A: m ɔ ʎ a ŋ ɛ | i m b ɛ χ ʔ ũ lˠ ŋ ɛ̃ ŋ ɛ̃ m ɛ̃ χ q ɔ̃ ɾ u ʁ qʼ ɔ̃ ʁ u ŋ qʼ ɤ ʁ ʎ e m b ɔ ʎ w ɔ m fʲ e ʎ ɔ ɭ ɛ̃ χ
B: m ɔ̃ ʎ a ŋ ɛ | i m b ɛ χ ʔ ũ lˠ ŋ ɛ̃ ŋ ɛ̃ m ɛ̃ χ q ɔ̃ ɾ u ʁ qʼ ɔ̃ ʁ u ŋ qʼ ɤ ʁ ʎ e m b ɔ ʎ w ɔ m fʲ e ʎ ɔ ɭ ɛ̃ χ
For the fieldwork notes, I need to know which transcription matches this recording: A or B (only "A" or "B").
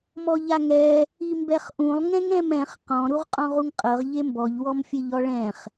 A